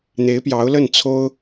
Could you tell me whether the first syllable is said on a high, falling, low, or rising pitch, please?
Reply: rising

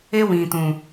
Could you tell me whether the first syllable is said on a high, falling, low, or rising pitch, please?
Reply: high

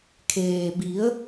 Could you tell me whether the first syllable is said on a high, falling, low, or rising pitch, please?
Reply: low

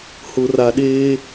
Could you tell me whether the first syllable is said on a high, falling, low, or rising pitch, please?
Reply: low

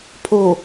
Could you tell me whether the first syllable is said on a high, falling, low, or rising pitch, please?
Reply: low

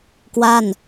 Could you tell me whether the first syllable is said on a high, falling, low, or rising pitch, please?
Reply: falling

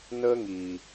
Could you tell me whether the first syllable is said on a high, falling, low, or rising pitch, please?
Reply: high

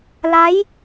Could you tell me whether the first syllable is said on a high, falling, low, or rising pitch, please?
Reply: rising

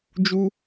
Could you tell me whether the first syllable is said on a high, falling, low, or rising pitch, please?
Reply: high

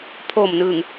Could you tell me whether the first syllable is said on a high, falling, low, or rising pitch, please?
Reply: low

